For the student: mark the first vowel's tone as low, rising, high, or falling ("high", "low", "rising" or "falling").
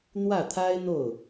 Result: falling